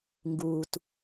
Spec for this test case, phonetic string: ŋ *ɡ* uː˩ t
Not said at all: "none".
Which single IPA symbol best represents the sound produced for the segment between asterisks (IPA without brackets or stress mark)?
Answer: ɡ